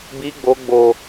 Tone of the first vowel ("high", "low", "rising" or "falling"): high